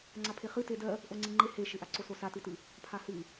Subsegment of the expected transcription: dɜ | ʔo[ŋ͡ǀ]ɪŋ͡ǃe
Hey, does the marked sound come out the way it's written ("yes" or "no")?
yes